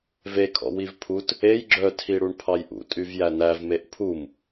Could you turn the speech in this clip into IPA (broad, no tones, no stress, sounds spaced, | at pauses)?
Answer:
v e kʰ ɔ̰ w i v pʰ u t | e j ɡ͡ǁ œ tʰ i ɽ u ɳ pʰ ɑ j ʔ ṵ tʼ y v j æ n æ v m e ʔ pʰ u m